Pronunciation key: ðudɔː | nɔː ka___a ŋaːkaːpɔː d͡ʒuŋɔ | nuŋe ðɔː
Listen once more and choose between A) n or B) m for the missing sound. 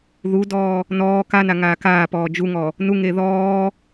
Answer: A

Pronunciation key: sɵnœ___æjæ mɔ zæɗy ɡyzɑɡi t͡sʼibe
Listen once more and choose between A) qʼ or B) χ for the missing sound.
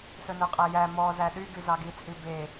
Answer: A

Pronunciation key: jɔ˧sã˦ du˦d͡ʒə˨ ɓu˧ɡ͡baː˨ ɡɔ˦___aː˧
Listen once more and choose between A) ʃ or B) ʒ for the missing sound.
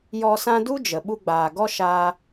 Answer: A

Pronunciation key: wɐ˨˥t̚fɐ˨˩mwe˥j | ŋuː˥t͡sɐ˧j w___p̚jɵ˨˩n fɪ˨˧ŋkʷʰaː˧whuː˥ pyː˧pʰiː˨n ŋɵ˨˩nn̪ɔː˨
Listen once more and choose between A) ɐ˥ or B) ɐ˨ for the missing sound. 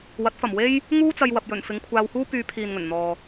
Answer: B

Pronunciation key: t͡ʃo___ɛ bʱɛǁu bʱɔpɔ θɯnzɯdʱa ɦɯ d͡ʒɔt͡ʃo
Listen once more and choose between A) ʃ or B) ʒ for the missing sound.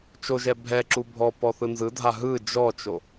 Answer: B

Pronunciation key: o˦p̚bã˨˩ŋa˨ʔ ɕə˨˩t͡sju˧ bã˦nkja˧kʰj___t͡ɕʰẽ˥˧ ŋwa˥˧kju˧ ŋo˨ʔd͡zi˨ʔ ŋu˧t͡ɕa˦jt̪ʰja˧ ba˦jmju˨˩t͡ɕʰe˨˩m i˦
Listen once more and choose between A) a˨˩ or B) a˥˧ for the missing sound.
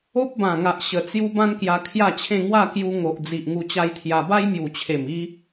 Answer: B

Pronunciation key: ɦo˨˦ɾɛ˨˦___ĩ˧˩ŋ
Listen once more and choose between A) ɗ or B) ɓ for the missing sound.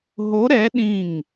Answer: A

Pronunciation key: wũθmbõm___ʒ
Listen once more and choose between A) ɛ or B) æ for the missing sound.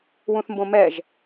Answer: A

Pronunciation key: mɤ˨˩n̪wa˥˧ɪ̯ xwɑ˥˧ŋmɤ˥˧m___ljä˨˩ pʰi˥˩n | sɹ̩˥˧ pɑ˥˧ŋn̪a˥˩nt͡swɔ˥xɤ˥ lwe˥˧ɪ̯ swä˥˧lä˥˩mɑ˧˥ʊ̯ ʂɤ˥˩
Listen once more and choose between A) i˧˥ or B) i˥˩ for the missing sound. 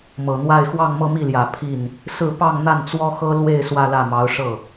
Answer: B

